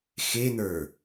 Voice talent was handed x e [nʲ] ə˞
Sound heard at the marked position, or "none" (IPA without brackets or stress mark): n̪